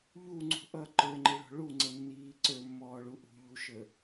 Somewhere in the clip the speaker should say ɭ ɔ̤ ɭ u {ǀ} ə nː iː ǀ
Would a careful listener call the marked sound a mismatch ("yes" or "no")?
yes